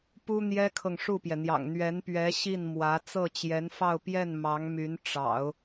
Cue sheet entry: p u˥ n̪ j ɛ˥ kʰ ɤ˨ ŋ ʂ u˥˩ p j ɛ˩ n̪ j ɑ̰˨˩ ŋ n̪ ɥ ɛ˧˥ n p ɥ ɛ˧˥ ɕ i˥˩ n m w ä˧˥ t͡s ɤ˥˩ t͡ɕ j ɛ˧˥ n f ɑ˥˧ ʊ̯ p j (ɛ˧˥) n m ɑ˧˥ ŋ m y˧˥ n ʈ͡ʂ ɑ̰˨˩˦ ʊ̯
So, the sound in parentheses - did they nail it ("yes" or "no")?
no